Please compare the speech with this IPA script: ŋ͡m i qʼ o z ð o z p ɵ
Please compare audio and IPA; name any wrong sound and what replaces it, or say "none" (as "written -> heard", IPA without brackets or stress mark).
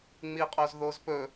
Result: none